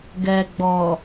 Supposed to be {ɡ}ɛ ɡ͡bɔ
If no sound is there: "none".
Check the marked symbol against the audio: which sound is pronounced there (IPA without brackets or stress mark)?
ɡ